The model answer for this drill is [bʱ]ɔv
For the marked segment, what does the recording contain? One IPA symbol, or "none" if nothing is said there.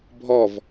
bʱ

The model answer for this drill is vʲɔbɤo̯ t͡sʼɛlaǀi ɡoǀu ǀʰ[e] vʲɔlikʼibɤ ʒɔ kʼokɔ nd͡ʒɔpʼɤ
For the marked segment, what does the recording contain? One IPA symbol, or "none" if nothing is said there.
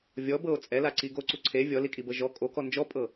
e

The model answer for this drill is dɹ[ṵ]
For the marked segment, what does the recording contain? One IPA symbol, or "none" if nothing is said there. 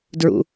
ṵ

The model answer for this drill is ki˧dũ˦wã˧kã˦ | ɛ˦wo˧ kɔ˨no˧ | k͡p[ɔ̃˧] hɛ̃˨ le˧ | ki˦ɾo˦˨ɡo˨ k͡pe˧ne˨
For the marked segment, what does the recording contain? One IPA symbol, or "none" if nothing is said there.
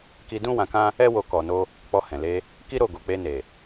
ɔ˧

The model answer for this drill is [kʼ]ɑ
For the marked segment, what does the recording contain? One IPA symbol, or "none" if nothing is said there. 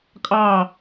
kʼ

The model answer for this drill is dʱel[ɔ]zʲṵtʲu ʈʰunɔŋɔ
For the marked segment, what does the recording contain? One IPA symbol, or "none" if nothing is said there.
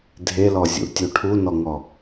ɔ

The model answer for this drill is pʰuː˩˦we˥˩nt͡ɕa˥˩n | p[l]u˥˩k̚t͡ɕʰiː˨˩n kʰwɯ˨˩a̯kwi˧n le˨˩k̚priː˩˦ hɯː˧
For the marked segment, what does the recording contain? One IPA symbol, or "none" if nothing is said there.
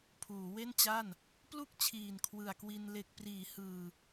l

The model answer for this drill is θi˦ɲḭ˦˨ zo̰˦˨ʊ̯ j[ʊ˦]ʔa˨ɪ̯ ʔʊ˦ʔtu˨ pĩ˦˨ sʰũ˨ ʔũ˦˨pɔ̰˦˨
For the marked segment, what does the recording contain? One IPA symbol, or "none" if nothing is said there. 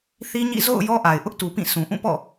ɔ˦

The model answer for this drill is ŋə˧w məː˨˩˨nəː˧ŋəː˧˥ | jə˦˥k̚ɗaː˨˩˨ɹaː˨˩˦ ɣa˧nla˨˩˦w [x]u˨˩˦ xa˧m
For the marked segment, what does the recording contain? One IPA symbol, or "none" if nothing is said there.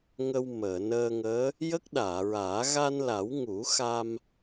ŋ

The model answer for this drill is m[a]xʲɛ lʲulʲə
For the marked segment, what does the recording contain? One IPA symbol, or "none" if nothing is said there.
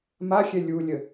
a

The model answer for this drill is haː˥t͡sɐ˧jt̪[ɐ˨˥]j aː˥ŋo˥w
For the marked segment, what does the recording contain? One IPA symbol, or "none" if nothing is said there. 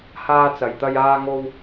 ɐ˥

